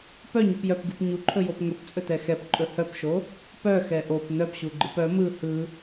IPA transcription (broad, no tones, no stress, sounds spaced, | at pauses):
p œ ɲ u p j œ p ɡ ɯ p ɲ u ǃʰ ɵ j o p ŋ ɵ p t͡sʼ ɵ t ɛ x ɛ p ǃʼ ɵ h œ p ʃ o | p œ x ɛ ʔ o p n œ p ɕ u ɡ͡ǃ ɯ p œ m ɯ h ɯ